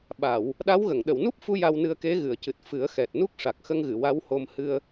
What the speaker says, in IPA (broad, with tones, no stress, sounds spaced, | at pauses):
ɓ a˨˩˨ w | ɗ a˧˥ w ɣ ə˨˩˨ ŋ ɗ ə˨˩˨ w n u˦˥ p̚ f u˧ j a˧ w n ɨ˧ ə̯ k e˧˥ ɣ ɨ˨˩˨ ə̯ c ɨ˨˩ t̚ f ɨ˨˩˦ ə̯ x ɛ˨˩ t̚ n u˦˥ k̚ ʂ a˨˩ k̚ x ə˧ ŋ ɣ ɨ˨˩˨ w a˧˥ w h o˧ m h ɨ˧ ə̯